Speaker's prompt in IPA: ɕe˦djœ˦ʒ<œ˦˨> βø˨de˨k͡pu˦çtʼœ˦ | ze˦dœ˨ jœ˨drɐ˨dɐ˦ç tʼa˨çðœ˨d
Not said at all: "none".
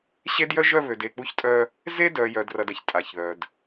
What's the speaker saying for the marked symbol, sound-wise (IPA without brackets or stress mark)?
œ˦˨